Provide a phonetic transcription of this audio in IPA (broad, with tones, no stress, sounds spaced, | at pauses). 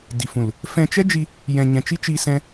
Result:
d i˨ f ũ˨ l | f ɛ̃˧ t͡ʃ ɛ˦ d͡ʒ i˧ | j ɛ̃˨ ɲ ɛ̃˨ t͡ʃ i˦ t͡ʃ i˧ s ɛ̃˦